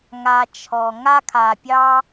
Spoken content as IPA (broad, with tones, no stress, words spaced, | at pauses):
ŋa˨ t͡ʃʰɔ˩ ŋa˥kʰa˨pʲɑ˥